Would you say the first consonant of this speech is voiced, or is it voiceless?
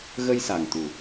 voiced